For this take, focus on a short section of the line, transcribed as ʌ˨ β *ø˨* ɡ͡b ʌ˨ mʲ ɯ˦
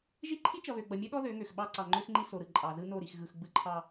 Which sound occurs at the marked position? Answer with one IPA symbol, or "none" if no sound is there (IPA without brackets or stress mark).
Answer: ø˨